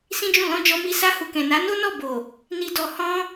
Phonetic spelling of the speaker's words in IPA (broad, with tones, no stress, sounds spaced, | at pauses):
s ĩ˦ d͡ʒ ũ˦˨ l ɔ̃˧ d͡ʒ ɔ˧ m i˧ s a˧ h u˨ k ɛ̃˨ n a˨˦ n o˦ n ɔ˦˨ b o˨ | n i˧ d ɔ˧ h ɔ̃˦